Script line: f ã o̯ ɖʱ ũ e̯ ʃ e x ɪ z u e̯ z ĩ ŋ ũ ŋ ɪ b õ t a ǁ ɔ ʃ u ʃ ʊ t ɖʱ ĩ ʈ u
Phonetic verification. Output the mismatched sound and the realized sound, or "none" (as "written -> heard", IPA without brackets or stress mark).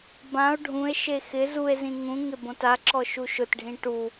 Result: f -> b